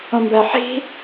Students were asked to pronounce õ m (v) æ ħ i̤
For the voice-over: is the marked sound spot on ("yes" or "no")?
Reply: no